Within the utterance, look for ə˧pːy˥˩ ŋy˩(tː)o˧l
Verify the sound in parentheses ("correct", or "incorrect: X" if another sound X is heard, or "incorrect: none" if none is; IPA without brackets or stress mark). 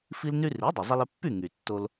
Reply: correct